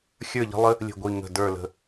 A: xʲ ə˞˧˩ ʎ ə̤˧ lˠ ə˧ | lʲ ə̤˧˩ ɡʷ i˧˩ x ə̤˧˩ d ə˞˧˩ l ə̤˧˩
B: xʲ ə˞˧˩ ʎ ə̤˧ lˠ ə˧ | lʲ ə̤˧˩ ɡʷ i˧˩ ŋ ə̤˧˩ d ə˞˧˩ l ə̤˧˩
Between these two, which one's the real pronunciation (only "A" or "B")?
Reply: B